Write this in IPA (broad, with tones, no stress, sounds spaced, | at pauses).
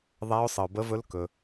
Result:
ðˤ æ˦˥ ʊ̯ sˤ ə˧ ʊ̯ b ə˦˥ v ɵ˦˥ l k ɵ˦˥